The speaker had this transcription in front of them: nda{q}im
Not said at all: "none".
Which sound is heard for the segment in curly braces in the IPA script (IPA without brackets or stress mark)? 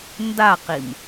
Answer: q